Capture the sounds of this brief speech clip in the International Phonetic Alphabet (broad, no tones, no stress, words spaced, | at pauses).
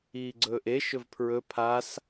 iːɡ͡ǀɵːʔe ʃɵvpʰɹɵ pʰas